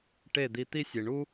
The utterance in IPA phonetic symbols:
ʈe˥˩d̪i˧ t̪i˥sʲe˩ɳu˥

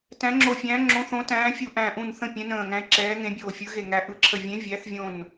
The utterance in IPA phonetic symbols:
tæ̃˨˦ŋ͡ǁo˧˩fʲæ̃ː˨˦ ŋ͡ǁõ˨˦θõ˨˦tæ̃ː˨˦ fʲu˧˩ʔæ̃˧˩ʔũ˧˩n θə̃˧˩ pʲɛ̃˨˦nə̃ː˧˩ŋæ̃˨˦e̯ ǁɛː˨˦ŋẽ˨˦bʲoː˧˩fʲɯ˨˦ ɣe˧˩ŋæ˨˦ ʔɯ˨˦ǁʰə˧˩ vʲẽ˨˦vʲæ˨˦θvʲõ˧˩n

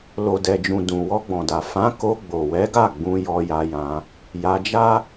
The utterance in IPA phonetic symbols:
lo˨dɛ˨d͡ʒũ˨ dũ˨ wɔ˧ɡ͡bɔ̃˨da˨ fã˨˦ ko˧ ɡ͡bo˨wɛ˨˦ɡa˦˨ ɡ͡bũ˧jɔ˧ja˧jã˧ | ja˧d͡ʒa˦

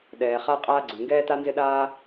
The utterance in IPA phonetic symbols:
ɗɛː˩χa˥qʼaː˥ ɡ͡ǀy˩ŋɡɛː˥ta˥ nzɪ˥ɗaː˥

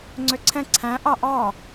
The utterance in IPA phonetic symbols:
ŋ͡ǀøǀʰɛ̃ ǀʰæ̃ ʔɑʔɑ

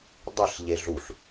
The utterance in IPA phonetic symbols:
dˤeɬʎe ɮuɬ

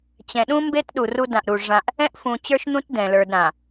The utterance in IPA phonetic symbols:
t͡ɕɛ̃˨ɗũ˦mbe˦t ɗu˨ ru˦dã˨ʔ ɾu˨ʐã˦ʔ | ɛ̃˦ʔfũ˨t͡ɕə˞˦ʃn̪ũ˦t dɛ̃˨lə˞˦dɾã˨

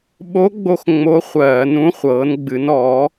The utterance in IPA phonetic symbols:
ɓo˧˥ɡ͡bo˧x ŋ͡mo˧˥χʷɜː˧˩˧nũ˧˥ χʷɤː˩˧nɡ͡bɨ˩˧nɔː˩˧

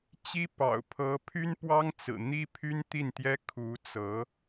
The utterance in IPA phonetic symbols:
t͡ɕi˥pɑ̰˨˩ʊ̯ pʰɤ˧˥pʰy˥npwɑ˥ŋt͡sɹ̩˨˩ n̪i˥ pʰy˥nt̪i˥˩nt̪jɛ˥ kʰu˧˥t͡sɤ˧˥

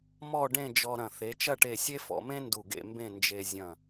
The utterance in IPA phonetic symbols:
mɔ˥˧ɖẽ˥˧ d͡ʒɔ˧ɾɐ̃˧˩ θe˩˧t͡ʃɐ˥˧ʈe˧˩sʲe˥ fɔ̰˧mẽ˥ ndu˧˩ɡḛ˥˧mbẽ˥˧ nd͡ʒe˧ zʲɐ̃˧˩

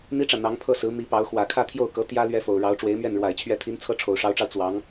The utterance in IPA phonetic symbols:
n̪i˥ʈ͡ʂä˨ n̪ɑ˧˥ŋpʰɤ˥˩sɹ̩˧˥ mi˧˥pɑ˧˥ʊ̯ xwä˨˩kʰä˥˧ t̪ʰjo˥˩ʊ̯kɤ˧˥ t̪jä˥ lɥɛ˥fo˨˩ʊ̯ ɻɑ˧˥ʊ̯ʈ͡ʂwe˧˥ɪ̯mɥɛ˥˩n ɻwa˨˩ɪ̯t͡ɕʰɥɛ˧˥t̪ʰi˧˥n t͡sʰɤ˥ʈ͡ʂʰo˨˩ʊ̯ʂɑ˧˥ʊ̯ʈ͡ʂɑ˧ʊ̯ t͡swɑ˧˥ŋ

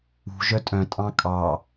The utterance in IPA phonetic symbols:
ṳ ʒœtʼœ̃tʼɑ̃ kʼɑ

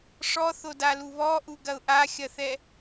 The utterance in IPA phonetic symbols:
ʂɔθodalu βɔʔuɡɐʊ̯ ʔaxʲɐθɛ

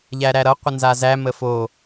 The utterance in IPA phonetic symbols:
ʎæɾæɾʌ qʷənzazæ məfo

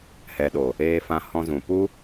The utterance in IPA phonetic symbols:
hɛ˨ɗo˨ | eː˧fã˧hɔ̃˧zũ˨ pu˦

